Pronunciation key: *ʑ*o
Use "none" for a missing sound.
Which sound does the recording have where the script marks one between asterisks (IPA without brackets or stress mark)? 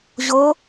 ʑ